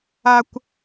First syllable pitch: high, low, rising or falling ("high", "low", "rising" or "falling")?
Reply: high